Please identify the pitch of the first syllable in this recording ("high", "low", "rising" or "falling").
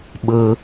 high